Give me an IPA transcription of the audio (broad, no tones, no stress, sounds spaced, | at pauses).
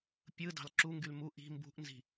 pʲ ɯ d ɑ̤ l ǁ u ŋ ɡ y l m u ʔ i̤ m b ṳ ʔ n z i̤